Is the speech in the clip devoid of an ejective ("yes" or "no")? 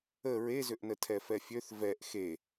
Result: yes